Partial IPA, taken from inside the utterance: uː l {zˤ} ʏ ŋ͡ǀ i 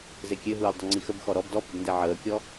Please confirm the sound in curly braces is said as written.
no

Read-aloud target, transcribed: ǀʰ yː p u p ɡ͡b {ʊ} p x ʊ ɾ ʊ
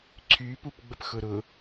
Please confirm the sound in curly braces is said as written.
no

